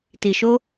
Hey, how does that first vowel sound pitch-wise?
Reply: low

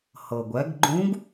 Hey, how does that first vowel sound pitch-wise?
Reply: low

